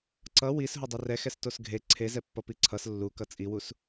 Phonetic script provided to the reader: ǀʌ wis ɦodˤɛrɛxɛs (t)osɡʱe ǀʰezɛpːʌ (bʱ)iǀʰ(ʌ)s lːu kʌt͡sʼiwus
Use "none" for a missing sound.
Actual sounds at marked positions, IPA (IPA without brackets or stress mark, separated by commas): t, p, ʌ